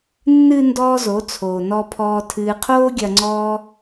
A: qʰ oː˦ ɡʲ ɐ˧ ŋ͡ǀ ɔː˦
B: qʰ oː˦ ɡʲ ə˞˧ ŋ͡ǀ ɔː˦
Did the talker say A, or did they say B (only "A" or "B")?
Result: A